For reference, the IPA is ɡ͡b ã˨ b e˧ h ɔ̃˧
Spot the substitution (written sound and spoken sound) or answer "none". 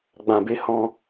none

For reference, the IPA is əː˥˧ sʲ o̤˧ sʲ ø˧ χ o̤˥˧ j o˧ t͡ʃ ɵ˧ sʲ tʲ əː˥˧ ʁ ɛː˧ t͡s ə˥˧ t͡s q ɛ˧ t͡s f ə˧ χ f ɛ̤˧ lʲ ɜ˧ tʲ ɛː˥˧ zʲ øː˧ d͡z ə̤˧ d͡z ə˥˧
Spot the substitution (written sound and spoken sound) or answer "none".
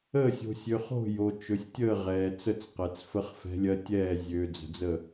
none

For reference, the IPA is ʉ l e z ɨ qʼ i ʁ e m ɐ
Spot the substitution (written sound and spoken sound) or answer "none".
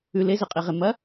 none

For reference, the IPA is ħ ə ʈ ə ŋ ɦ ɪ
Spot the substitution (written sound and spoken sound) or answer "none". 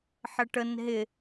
ŋ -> n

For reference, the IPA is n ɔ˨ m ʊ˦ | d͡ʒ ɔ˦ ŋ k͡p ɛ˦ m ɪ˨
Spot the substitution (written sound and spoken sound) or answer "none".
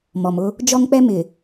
n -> m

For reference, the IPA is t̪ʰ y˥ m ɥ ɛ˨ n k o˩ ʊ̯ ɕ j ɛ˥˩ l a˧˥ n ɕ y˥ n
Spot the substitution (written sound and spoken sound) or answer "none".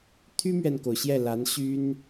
none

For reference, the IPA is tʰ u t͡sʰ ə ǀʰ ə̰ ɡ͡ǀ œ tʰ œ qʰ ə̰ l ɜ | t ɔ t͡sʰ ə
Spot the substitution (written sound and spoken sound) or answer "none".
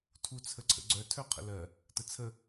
ɔ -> ə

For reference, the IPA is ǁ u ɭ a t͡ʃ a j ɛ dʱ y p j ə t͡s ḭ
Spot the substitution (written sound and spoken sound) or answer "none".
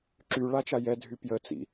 u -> y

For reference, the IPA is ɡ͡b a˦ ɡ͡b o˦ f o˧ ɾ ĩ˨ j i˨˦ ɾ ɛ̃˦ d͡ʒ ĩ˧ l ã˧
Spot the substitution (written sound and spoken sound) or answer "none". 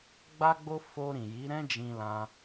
none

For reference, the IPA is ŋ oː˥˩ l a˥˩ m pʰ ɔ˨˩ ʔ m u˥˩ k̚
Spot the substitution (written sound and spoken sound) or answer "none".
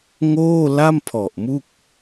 none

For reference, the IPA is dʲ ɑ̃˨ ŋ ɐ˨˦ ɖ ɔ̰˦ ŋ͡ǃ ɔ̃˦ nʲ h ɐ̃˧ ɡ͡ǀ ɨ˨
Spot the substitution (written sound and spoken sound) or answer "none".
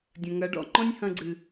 ɑ̃˨ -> ɐ̃˨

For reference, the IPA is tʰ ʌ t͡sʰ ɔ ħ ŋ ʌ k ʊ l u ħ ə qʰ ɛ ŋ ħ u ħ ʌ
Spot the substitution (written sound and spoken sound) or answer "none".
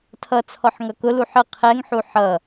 none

